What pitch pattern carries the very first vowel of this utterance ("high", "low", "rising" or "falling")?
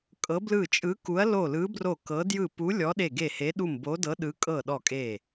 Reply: rising